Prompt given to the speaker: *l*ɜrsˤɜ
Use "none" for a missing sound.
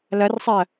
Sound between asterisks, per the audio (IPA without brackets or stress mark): l